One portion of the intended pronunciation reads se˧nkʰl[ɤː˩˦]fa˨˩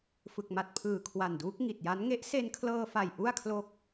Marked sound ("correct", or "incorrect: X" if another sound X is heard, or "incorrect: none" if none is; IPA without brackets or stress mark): incorrect: ɤː˧